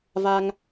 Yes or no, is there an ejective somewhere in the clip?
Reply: no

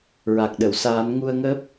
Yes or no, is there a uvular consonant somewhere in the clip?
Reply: no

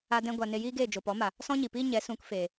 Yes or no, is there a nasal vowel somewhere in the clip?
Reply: yes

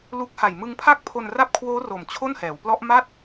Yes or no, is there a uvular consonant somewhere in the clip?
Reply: no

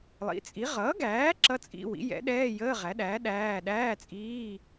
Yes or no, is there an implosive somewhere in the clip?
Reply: yes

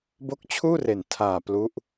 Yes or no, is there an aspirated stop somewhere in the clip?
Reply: yes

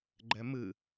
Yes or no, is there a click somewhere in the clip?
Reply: yes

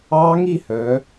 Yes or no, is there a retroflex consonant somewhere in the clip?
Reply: no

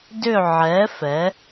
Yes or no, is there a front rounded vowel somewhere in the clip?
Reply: yes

